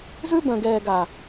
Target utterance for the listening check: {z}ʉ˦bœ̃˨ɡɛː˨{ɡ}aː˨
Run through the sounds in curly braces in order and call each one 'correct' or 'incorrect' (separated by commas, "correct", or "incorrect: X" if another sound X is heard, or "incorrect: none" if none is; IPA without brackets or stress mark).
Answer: correct, correct